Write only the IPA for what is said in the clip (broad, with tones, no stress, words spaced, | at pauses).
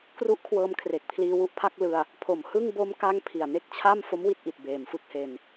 kru˦˥ʔkʰwɤː˧mkʰre˨˩k̚pʰliː˧ wu˦˥ʔpʰa˦˥k̚lɯ˧a̯ | pʰo˨˩mhɯ˥˩ŋ bo˦˥mka˦˥ŋ pʰi˨˩a̯ne˥˩k̚t͡ɕʰa˥˩m fo˦˥mwi˦˥t̚ʔi˨˩t̚ beː˨˩mfɯ˥˩k̚he˧n